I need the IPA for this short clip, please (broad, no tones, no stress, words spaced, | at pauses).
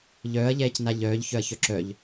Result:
ʎœːɐ̯ʎɛːcna ʎœːʎçœɐ̯çœ ǁœʎ